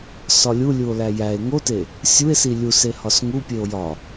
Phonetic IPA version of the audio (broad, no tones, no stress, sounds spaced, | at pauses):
s ɒ lʲ u lʲ u o̯ l æ j æ e̯ ŋ o t e | sʲ u e̯ s i lʲ u s e h ɒ s ŋ u pʲ e o̯ j ɒ